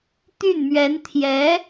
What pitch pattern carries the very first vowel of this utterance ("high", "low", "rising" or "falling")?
falling